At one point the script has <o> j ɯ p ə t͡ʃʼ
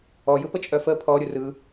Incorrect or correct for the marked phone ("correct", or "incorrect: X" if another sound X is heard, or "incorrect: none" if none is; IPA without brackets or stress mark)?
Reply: incorrect: ɔ